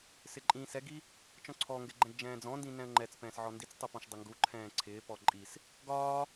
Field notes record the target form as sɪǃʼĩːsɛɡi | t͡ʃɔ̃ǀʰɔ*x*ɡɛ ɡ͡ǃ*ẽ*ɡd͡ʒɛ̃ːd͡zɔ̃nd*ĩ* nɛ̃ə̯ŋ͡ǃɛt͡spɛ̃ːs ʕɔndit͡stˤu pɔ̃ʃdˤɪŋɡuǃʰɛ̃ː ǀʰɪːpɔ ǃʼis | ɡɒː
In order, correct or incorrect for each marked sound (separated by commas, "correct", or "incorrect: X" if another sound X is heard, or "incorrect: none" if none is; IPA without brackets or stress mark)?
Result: incorrect: ŋ, incorrect: ɛ̃, correct